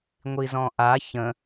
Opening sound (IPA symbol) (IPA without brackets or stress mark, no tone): ŋʷ